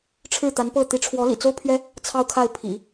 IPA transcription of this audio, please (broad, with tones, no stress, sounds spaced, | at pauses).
ʈ͡ʂʰ ɻ̩˥˩ t̪ a˧˥ n p ɤ˥˩ t̪ i˧˥ ʈ͡ʂʰ w ɔ˧˥ l ḭ˨˩ t͡s o˥ ʊ̯ pʰ ɥ ɛ˥ | t͡sʰ ɑ˥ ʊ̯ kʰ a˥˩ ɪ̯ pʰ ḭ˨˩˦